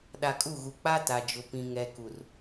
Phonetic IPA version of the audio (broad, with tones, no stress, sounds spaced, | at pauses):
ɗ a˨ kʼ u˦˨ ɣ u˨ k͡p a˦ t a˨ d͡ʒ ʊ˨ p ĩ˨ ŋ ɛ˨ k u˨ r